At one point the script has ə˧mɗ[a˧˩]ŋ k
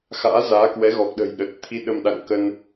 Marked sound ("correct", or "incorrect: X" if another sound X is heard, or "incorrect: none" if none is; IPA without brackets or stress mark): incorrect: a̰˧˨